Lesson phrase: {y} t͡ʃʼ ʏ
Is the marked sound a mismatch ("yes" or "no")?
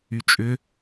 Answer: no